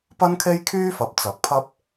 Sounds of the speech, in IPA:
p ɐ˥ n kʰ e˥ j kʰ yː˥ f ɐ˨ p̚ t͡s ɐ˨˥ k̚ pʰ ɐ˥ p̚

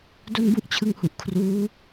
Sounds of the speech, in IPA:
d o˥˩ n b u˥˩ ʔ t͡ɕʰ ɯ˧ ŋ h u˨˩ ʔ kʰ r uː˦˥

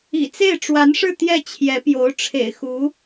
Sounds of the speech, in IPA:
ḭ˨˩ t͡s e˥˩ ɪ̯ ʈ͡ʂ w a˧˥ n ʂ ɻ̩˥˧ t̪ j ɛ˥˩ t͡ɕʰ j ɛ˧˥ p j o˧˥ ʊ̯ ʈ͡ʂʰ ḛ˨˩ ɪ̯ x u˧˥

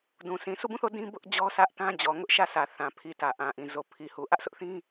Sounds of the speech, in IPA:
d ũ˨ s ĩ˨ s u˦˨ b ũ˦˨ θ o˦˨ d ĩ˦ b ʊ˦ ʔ d͡ʑ ɔ˦ s ä˦ ʔ t ã˦ d͡ʑ ɔ˨ ŋ ʊ˦ ʔ ʃ ä˦˨ sʰ ä˨ θ ã˨ pʰ i˨ t ä˨ ʔ ã˨ ʔ ĩ˨ z o˨ pʰ i˨ h u˨ ʔ ä˦ ʔ sʰ ʊ˦ ʔ θ ĩ˦

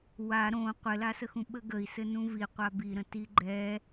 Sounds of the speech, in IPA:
w a ɾ õ qʷ ɘ l a s ə x ũ ɓ ə ɡ ə i̯ s ɘ n ũ v i qʷ a b i ɾ ə̃ t i ɡ͡ǃ ɛ

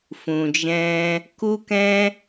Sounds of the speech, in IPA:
f ũ˨ d͡ʒ ɛ̃˧ | k u˦ k ɛ̃˦

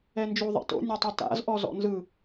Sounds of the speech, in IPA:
ɛ n d͡ʒ u ðˤ ɛ̰ t o̰ nʲ o tˤ i t a̰ z ʔ ɔ z ɔ̰ n z ɯ

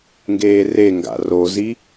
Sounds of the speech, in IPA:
ŋ ɡ eː r e ŋ ɡ a̰ r o z i

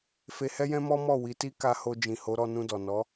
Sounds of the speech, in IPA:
f e˧ h ɛ˦ j ɛ̃˦ m ɔ˦ m ɔ˦˨ w i˨˦ t i˦ k a˧ h o˧ d͡ʒ ĩ˨ h o˨˦ ɾ ɔ˧ n ũ˧ d ɔ˨ n ɔ˨˦

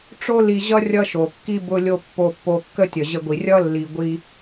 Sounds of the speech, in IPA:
ʈ͡ʂ o˦ l i˧ ʑ ʌ˦ rʲ ʌ˦ ʃ o˨ kː i˦ b ʊ˧ lʲ o˧ pː o˧ pː o˧ kː ə˦ tʲ ə˨ ʑ ə˧ ɡʷ i˨ rʲ ʌ˦ lː i˨ ɡʷ i˧

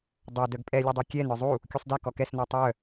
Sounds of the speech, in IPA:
dˤ œ d œ ɡ pʼ ɛ lʲ ɛ dˤ u kʲ ɛ n œ zˤ u | kʲ u sˤ d ɛ k ɔ k ɛ s n ɔ tˤ œ

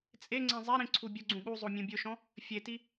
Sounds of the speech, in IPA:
t͡sʼ e ŋ͡ǀ ẽ zˤ ɛ ɾ ĩ ǀʰ u bʲ ʊ ɡ͡ǀ ũ ɠ u zˤ o mʲ ũ bʲ ʊ ʃ ɔ̃ | fʲ e t i

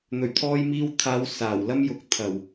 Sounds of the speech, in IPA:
n̪ ɵ˨˩ ɥ t̪ʰ ɔː˧ j m iː˧ w t̪ʰ aː˨˧ w s aː˨˩ w l ɐ˥ m j ʊ˨˥ k̚ t̪ʰ ɐ˨˩ w

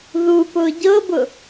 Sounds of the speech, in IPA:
ð u p ʊ ɟ ɤ b ʊ

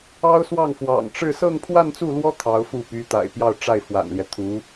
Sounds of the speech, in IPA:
ɑ˥ ʊ̯ s w ɑ˥˩ ŋ f w ɑ̰˨˩ ŋ ʈ͡ʂ ɻ̩˥˧ s ɤ˥˧ ŋ pʰ w a˥˧ n t͡s u˥˩ l w ɔ˥ t̪ʰ ɑ˧˥ ʊ̯ f u˥˩ p y˧˥ t̪ a̰˨˩ ɪ̯ p j ɑ˥˧ ʊ̯ ʈ͡ʂ a˥˩ ɪ̯ f w a̰˨˩ n l j ɛ˦ t̪ʰ u˧˥

